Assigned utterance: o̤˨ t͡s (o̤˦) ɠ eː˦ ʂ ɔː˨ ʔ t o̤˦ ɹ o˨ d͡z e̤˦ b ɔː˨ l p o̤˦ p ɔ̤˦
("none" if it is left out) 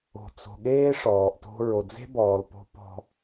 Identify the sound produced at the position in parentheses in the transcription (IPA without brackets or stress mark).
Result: o̤˨